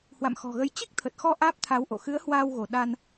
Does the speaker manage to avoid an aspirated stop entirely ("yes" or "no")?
no